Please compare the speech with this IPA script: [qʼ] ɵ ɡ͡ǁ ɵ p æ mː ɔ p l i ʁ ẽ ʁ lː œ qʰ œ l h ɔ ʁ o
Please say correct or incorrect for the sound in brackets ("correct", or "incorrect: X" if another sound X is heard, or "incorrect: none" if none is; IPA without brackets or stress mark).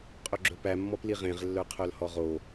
correct